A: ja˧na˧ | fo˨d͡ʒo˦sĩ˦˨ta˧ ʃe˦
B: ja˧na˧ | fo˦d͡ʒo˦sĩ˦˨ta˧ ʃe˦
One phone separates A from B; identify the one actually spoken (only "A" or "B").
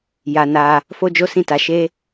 B